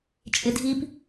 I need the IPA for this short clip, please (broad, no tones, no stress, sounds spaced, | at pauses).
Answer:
t͡ʃʼ ɪ dʱ i p